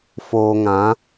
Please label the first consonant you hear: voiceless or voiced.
voiceless